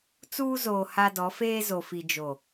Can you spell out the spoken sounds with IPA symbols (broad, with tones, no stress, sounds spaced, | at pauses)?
t͡s uː˦ z oː˨ h a˦ d ɔ˨˦ f eː˦ z o˨ f i˨ d͡ʒ o˨